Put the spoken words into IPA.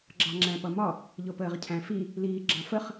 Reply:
ɡ͡ǁ ɑ ŋ͡ǁ æ̃ p ʌ m ɒ | ʎ ʊ p əː ʁ cʰ æ̃ f i | l iː ɡ͡ǁ ɑ̃ f ə χ

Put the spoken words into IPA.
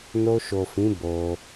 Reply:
n o˧ ʃ o˨ f ĩ˨˦ b o˧

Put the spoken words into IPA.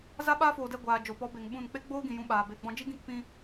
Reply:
z a˦ ɓ aː˦ f oː˨ d ɛ˦˨ ɡʷ aː˨ d͡ʒ o˨ p ɔ˨˦ b e˨ ŋ ɓ ũ˦˨ n k͡p e˦ ɡ͡b oː˦ ɡ ĩ˨ j ũ˧ ɓ aː˨ b e˧ ɡ͡b ɔ̃˦ d͡ʒ i˦ ɡ ĩ˦˨ k p ĩ˧

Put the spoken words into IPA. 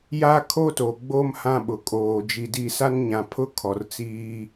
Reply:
j a˦ kʰ o˦ t o˨ ɡ͡b o˦ m h ã˦ ɓ ʊ˨ kʼ oː˨ d͡ʒ i˨ d i˦˨ s a˦ n ɲ ã˨ pʰ ʊ˦ kʰ ɔ˨ r t͡s iː˦

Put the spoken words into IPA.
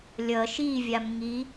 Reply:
lʲ ʌ ʃ i vʲ a m ŋ i

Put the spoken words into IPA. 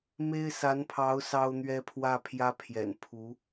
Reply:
m e˥ ɪ̯ s a˧˥ n pʰ ɑ˧˥ ʊ̯ s ɑ˥ ʊ̯ n̪ ɥ ɛ˥ pʰ w ä˥˩ pʰ j ä˥ pʰ j ɛ̰˨˩ n pʰ u˧˥

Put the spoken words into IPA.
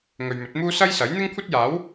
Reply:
ŋ ɵ˨ ɥ m ɵ˨˥ t̚ m uː˥ s ɐ˥ j s ɐ˨˥ j n̪ ɪ˥ ŋ kʷʰ ɐ˥ t̚ j aː˨˥ w

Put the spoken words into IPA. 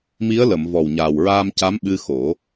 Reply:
m i˧˥ ə̯ l ə˨˩˨ m v ɔ˨˩ w ɲ aː˨˩ w ɹ aː˧ m c a˧˥ m ɓ ɨ˧ x o˨˩˦

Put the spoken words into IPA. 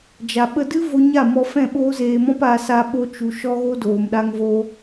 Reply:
d͡ʒ a˨ ɓ ə˧ d ɨ˦ v o˧ ɲ a˦˨ m ɔ˧ f ɛ̃˦˨ ɓ oː˦ z eː˧ m ɔ̃˦ p a˧ s a˦ ɓ o˦ t͡ʃ u˧ ʃ ɔ˦ ɣ o˦ d oː˨ m ɗ a˧ ŋ v o˧

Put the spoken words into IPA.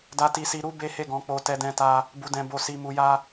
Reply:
d a˧ t i˧ s i˧ ɾ u˦ b e˦ h e˦˨ ɡ ɔ̃˨˦ k͡p o˧ t ɛ˧ d ɛ̃˧ t a˧ | b u˧ d ɛ̃˧ b o˧ s i˧ m u˧ j a˦

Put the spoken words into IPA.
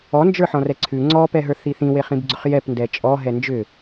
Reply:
ɔ n d͡ʒ ə˞ ħ ɔ̃ r ɛ ǀʰ ʉ ŋ͡ǀ ɔ p ɛ ɦ ə˞ θ i θ ĩ w e χ ĩ b ɡ͡ǀ ʏ χ j ɛ p n d ɛ t͡ʃʼ ɔ ɦ ɛ n d͡ʒ ʏ

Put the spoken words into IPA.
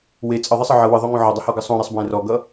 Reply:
w e t͡sʼ ɘ ðˤ ɨ sˤ ɘ ʕ ʌ w ɨ ðˤ o ŋ õ ʕ ɔ dˤ ɘ h ɔ ɡ ɨ sˤ õ ɾ e sˤ b w ẽ r ɔ ɡ ʌ

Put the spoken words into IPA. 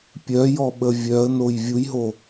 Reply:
pʲ œ j ɔ ɓ ə vʲ œ ə̯ n o j vʲ u j ɦ o

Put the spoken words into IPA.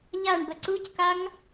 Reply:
ʎ a ɳ b ə ǀ u c k a ŋ

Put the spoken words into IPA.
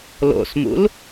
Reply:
l o̰ s m ṵ l

